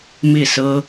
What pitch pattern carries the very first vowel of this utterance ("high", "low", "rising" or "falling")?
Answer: falling